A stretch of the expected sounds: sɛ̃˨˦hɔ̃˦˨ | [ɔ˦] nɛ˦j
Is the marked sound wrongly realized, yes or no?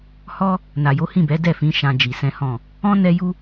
yes